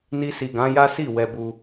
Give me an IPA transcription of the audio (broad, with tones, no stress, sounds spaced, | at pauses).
n i˧ s i˨ ɡ ã˨˦ j a˦ s i˦˨ w ɛ˧ b u˧